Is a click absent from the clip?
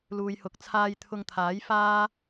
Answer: yes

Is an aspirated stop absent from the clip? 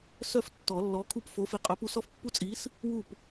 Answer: no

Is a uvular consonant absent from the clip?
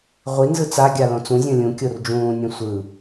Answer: no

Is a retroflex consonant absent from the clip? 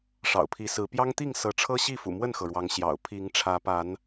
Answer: no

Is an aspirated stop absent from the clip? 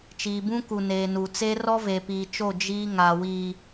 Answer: yes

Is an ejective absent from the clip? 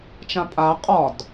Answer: no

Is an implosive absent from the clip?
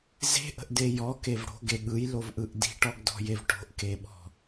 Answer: no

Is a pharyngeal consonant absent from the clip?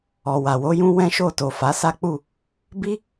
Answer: yes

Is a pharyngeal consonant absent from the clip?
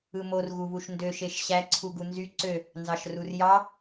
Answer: yes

